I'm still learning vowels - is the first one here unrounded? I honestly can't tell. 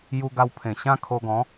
no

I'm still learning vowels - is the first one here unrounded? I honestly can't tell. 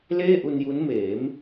yes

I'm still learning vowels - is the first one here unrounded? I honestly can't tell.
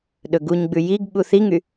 no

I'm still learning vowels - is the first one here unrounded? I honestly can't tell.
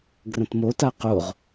yes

